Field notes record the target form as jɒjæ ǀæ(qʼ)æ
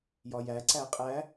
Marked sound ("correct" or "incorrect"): correct